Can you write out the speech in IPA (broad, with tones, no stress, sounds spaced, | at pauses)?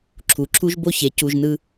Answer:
ǁʰ u˨ ǁʰ u˦ ʒ b o˦ ç e˨˦ c u˧ ʒ n ɯ˦